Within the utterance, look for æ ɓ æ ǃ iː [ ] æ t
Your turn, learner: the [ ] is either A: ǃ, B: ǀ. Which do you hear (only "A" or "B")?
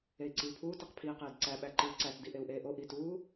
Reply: B